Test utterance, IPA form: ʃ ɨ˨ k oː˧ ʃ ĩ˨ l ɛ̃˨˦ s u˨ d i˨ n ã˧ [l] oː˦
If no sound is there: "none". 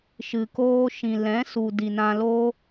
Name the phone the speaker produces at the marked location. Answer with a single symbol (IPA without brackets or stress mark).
l